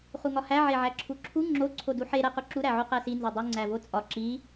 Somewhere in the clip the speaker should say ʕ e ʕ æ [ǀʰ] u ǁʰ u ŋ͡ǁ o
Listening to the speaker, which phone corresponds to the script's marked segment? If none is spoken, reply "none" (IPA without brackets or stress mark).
ǁʰ